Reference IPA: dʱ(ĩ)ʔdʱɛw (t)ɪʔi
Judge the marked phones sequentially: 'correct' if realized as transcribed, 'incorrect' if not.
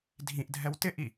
correct, correct

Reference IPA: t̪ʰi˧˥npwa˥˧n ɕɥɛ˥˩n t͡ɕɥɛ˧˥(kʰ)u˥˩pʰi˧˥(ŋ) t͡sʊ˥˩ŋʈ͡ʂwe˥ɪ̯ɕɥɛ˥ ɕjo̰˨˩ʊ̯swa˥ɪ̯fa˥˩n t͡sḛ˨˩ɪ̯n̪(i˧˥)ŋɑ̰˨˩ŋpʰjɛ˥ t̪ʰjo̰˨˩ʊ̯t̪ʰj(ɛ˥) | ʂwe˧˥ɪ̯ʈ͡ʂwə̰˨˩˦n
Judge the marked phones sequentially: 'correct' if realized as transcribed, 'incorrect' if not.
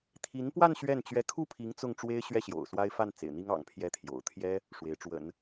correct, correct, incorrect: i˥, correct

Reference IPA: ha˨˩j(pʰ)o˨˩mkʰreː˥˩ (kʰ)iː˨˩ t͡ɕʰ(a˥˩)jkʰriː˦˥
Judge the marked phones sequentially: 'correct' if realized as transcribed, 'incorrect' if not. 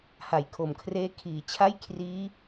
incorrect: kʰ, correct, correct

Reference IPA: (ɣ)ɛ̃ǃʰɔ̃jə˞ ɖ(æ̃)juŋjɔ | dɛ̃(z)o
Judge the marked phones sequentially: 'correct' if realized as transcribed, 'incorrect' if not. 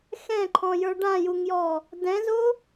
incorrect: x, incorrect: ã, correct

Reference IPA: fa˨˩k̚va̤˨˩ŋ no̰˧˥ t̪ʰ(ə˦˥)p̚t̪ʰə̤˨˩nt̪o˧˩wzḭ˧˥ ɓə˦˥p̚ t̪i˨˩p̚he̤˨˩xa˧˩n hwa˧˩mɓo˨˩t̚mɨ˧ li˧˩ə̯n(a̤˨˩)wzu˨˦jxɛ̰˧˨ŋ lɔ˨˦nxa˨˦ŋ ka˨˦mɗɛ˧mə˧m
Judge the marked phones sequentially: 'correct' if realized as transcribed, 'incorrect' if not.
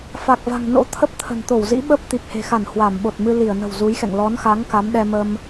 correct, incorrect: ə̤˨˩

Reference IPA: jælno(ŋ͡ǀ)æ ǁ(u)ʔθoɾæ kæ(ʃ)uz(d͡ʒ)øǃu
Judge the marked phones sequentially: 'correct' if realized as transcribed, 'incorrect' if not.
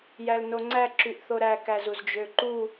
correct, incorrect: y, incorrect: z, correct

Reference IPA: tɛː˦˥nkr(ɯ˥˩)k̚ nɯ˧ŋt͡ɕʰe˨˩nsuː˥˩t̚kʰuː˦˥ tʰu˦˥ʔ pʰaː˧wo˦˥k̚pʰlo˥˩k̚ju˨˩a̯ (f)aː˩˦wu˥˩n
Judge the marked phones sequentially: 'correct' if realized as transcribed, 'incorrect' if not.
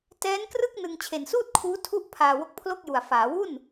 correct, correct

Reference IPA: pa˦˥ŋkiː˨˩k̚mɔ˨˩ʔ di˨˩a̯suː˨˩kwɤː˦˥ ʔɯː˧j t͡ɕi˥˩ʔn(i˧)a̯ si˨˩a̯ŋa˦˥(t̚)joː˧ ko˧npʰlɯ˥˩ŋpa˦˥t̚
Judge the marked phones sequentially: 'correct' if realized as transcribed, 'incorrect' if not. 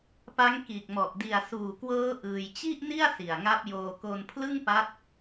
incorrect: i˥˩, incorrect: p̚

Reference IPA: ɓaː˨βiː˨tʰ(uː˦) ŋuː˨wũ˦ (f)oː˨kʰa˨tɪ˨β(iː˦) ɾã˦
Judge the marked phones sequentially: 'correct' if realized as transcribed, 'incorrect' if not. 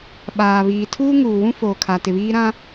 correct, correct, correct

